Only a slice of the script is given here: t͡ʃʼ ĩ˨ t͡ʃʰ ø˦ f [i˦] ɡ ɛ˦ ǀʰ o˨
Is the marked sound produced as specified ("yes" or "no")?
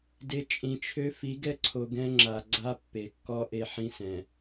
no